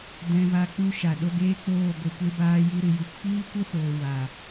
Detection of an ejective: absent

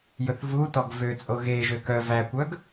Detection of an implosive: absent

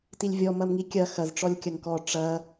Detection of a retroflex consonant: present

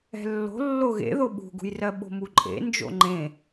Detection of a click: present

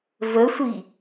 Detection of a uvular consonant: absent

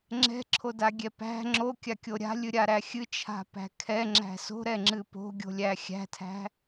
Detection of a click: present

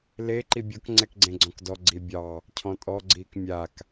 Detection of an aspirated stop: present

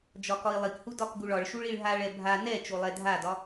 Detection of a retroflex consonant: present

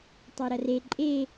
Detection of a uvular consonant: absent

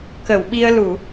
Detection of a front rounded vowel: absent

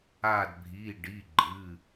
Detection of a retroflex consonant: present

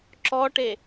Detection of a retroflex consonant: present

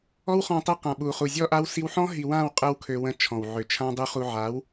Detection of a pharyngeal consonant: present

